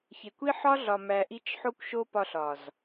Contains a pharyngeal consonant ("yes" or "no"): yes